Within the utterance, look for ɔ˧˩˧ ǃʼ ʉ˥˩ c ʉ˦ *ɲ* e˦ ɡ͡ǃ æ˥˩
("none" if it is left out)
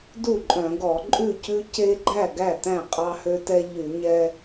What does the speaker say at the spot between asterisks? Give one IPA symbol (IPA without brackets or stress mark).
c